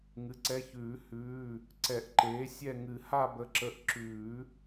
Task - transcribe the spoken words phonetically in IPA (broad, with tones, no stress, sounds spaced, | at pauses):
ŋ ɨ˩˥ ǀ ɛ˩˧˩ ç ʉː˨˩˦ h ʉː˩˧˩ | ǀ ɛ˨˩˦ ʔ ǃ eː˩˥ sʲ ɛ˦˨ ŋ ɨ˨˩˦ h a˦˨ b ə˩˧˩ ǁ ə˨˩˦ ʔ ǁ ʉː˨˩˦